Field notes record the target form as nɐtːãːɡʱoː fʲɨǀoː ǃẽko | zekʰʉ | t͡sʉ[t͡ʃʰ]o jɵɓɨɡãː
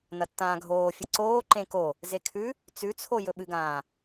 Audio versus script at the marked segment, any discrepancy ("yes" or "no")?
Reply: yes